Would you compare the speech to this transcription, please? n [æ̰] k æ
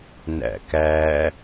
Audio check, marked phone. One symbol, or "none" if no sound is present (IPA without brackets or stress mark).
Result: æ̰